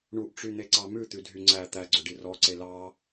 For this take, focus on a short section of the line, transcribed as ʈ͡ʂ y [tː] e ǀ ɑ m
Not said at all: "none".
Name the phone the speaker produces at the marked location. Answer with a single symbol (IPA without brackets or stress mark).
n̪